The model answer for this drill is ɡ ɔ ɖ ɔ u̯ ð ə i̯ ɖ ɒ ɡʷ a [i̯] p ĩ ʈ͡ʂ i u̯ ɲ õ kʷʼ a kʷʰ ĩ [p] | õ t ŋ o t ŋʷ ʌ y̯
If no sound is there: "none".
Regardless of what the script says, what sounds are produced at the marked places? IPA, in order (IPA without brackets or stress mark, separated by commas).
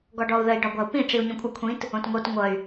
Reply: u̯, t